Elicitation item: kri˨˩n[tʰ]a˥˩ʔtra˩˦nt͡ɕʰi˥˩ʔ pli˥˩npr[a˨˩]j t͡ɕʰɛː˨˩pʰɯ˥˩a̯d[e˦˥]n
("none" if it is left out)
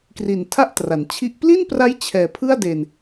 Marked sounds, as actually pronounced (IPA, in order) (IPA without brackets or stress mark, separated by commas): tʰ, a˦˥, e˨˩